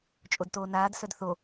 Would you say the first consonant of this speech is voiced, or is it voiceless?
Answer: voiceless